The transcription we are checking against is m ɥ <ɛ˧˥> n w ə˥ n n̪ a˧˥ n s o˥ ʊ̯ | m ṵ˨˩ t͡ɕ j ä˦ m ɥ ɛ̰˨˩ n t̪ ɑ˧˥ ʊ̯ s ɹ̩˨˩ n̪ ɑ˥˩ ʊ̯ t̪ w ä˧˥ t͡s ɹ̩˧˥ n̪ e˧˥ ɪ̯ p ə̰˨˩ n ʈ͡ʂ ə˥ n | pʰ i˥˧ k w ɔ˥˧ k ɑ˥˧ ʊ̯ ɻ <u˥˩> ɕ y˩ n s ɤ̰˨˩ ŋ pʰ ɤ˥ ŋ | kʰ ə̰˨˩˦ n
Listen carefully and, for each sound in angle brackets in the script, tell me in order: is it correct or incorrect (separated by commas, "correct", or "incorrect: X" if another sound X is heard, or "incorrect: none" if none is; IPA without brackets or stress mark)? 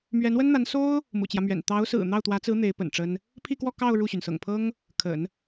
correct, correct